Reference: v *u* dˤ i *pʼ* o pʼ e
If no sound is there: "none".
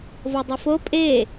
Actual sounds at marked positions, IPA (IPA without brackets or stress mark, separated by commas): o, f